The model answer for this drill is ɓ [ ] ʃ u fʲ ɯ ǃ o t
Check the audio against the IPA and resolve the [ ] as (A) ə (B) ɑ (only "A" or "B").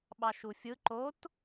B